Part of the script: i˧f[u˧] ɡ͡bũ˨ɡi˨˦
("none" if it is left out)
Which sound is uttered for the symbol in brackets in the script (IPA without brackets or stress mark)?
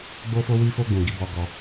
o˧